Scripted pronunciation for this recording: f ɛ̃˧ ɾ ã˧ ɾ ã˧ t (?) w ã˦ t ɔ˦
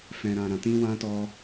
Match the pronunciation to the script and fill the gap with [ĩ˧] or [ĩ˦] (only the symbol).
ĩ˦